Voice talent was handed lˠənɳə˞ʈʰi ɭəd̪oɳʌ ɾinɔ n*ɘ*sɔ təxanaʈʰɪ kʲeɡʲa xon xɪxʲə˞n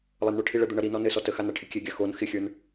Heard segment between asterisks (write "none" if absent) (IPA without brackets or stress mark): ɘ